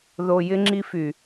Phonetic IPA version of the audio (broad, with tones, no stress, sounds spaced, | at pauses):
ð o˨ j ɪ˧ ŋ͡ǁ i˧ f y˨